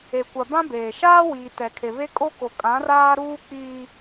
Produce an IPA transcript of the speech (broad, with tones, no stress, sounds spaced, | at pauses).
e˨ kʷ a˨ b ã˦ b eː˨ ʃ aː˦ w iː˨ t ɛ˨ kʰ e˨ β e˦ kʼ o˦ k o˨ kʼ ã˨˦ r aː˦ ɾ uː˦ k͡p iː˦